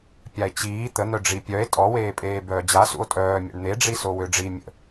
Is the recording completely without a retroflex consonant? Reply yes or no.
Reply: no